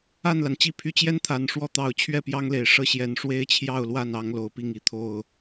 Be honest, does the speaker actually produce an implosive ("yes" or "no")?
no